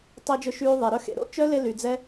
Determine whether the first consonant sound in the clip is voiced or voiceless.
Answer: voiceless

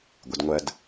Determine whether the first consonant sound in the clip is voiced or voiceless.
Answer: voiced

